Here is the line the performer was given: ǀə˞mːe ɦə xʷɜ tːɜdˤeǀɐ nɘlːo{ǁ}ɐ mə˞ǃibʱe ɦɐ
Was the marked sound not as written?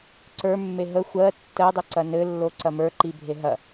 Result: yes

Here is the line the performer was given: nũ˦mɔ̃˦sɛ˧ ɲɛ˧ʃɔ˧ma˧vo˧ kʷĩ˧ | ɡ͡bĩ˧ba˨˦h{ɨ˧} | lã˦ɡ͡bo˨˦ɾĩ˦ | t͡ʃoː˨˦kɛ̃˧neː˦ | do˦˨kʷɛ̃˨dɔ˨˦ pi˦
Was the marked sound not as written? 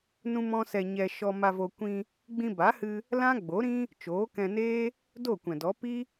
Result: no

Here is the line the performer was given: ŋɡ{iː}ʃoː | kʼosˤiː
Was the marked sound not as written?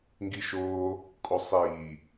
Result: yes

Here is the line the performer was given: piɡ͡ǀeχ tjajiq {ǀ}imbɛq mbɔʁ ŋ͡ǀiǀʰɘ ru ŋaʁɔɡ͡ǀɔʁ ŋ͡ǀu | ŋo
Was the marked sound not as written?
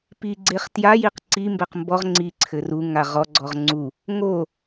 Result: no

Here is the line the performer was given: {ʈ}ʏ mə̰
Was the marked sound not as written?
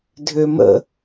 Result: yes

